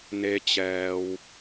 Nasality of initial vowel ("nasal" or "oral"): oral